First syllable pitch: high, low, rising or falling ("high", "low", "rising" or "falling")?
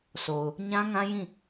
low